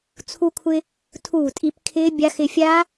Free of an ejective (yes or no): no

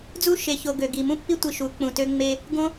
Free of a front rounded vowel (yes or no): no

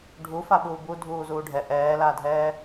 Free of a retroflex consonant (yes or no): no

